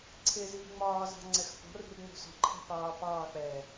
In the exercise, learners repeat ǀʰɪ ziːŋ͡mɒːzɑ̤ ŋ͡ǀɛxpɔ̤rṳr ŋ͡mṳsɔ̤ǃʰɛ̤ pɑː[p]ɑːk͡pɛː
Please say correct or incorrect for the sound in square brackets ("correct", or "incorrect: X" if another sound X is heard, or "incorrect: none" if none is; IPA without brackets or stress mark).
correct